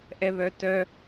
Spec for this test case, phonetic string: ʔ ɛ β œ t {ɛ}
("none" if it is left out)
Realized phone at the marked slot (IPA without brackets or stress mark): œ